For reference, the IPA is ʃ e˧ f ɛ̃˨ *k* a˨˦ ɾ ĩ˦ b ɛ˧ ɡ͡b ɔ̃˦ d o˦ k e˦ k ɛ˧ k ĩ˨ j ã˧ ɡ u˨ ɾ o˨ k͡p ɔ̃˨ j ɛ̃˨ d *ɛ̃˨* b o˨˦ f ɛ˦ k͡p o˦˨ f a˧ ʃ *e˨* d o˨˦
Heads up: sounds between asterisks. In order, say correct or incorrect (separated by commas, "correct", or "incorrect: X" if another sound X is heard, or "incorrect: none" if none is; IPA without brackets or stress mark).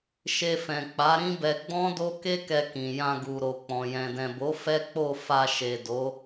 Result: incorrect: k͡p, correct, correct